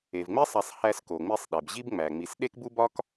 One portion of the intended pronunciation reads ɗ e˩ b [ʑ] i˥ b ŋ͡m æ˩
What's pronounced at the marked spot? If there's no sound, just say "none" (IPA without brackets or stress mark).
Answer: ʑ